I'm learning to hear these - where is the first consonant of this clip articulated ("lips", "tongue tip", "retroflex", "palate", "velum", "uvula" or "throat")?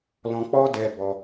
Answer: tongue tip